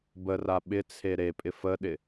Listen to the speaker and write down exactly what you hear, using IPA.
b ə r a ɓ ɪ t͡sʰ e ɾ e pʼ ɪ f ə ɗ ɪ

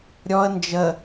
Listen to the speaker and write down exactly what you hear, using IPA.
ɾʲ ɔ ə̯ n d͡ʒ ə

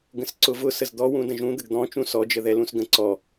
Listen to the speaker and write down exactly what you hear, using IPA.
ɡ ə̃ s ǀ ʊ v ʊ s ə z d̪ ɔ w ũ d ə̃ ʒ ũ d̪ ə ɡ d̪ ɔ̃ t͡ʃ ũ s ɔ d͡ʒ ə ð ɛ l ũ s ɡ ə̃ ǀ ɔ

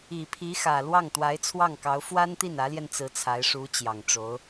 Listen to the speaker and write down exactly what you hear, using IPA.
i˨˩ pʰ i˧˥ x ä˨˩ l w ɑ˥˩ ŋ t̪ w a˧˥ ɪ̯ t͡sʰ w ɑ˥˩ ŋ k ɑ˧˥ ʊ̯ f w a˥ n t̪ i˥˩ n ä˧˥ l j ɛ˧ n t͡s ɹ̩˧˥ t͡sʰ a˧˥ ɪ̯ ʂ u˧˥ t͡ɕ j ɑ˨˩ ŋ ʈ͡ʂ o˧˥ ʊ̯

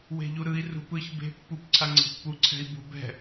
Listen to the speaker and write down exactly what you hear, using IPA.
w e̤ ʎ u ɾ ɯ i̯ r ṳ p ɯ ç b e̤ pː u p ǀʰ a ŋ͡ǀ e̤ pː u ǀʰ ɛ̤ i̯ b ṳ b ɛ̤

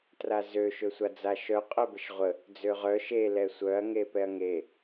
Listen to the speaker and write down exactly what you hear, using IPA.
t r a z ø ʃ ø sʷ a d͡z a ʃ œ qʼ œ b ə ʃ ʁʷ ə | d͡z ø ʁ œ ʃ e l ɛ sʷ œ ɐ̯ ŋ e p ɛ ɐ̯ ŋ e

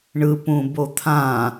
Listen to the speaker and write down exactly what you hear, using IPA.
ɳ ɯ p ũ b o t̪ʰ ã

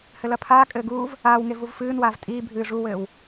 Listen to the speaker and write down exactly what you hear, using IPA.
h ɘ l ɐ pʰ aː kʼ ɘː ɡ uː v | aː w ŋ e v u v f ɨː n w aː v tʼ iː bʱ ɨː ʐ u w ɘː w

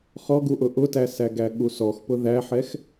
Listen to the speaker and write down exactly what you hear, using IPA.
χ ɔ ɡ u ʔ ʊ ʔ ʊ t æ s æ ɡ æ ɠ u s ɔ x p ʊ ð æ ħ ɛ x

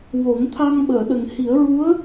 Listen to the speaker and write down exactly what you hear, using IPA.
w o˨˩˦ ŋ t̪ʰ a˧ ŋ ɓ əː˨˩˨ ɗ ə˨˩ ŋ h i˨˩˦ ə̯ ɹ u˧˥ ə̯

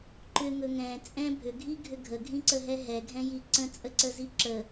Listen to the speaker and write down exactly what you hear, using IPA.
ǃ ʏ ŋ ɵ ŋ ɛ̃ t͡sʼ ɛ̃ bʱ ʏ ɡʱ i ɡʱ ʏ ɡʱ ə ɡʱ ĩ ǀ ə ɦ ɛ ɦ ɛ ɡʱ ɛ̃ j i ǀ ə̃ t͡sʼ ə ǀ ə z i ǁ ə

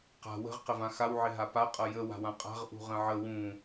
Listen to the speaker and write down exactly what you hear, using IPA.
q a̤ w ə̤ ʁ q ə v ã x a w ʕ ɪ ɦ a p a qʼ ʌ j ə w a̤ w ã qʼ a̤ ʁ ʔ ṳ ʁ ə̃ ʕ ə w ũ

